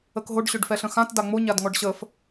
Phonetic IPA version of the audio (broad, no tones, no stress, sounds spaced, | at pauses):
ə k ɦ o ɖ ɕ ø ɖ f ɛ ɬ ə̃ x ã t d a ŋ͡m o ɲ a d ŋ ɔ ɖ ɕ ə f